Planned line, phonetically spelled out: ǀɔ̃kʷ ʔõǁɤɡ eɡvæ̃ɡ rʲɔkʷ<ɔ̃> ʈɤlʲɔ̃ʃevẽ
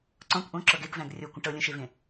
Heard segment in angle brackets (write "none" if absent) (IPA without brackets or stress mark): ə̃